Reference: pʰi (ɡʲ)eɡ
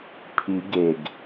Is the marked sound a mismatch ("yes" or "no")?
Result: yes